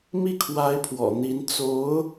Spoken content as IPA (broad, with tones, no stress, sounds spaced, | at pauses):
m i˥˩ kʰ w a˧˥ ɪ̯ pʰ w ɔ̰˨˩ n̪ i˧˥ n t͡s o˧˥ ʊ̯